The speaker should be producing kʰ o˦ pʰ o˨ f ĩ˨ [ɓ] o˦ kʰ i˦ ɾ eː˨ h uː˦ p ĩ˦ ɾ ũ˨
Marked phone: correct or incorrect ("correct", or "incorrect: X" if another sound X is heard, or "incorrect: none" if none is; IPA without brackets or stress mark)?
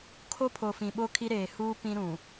correct